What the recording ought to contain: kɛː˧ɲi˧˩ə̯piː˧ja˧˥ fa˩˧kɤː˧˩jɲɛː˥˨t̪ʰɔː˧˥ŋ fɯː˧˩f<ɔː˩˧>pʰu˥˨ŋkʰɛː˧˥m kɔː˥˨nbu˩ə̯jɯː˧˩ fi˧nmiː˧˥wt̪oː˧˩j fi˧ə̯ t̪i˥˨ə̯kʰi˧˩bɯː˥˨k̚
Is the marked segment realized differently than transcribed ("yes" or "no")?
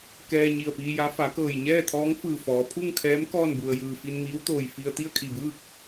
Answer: no